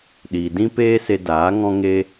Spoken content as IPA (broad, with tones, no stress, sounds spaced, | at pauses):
ɗ iː˨ d ĩ˦ p eː˦ s e˧ d aː˨˦ ŋ ɔ̃˦ ŋ e˦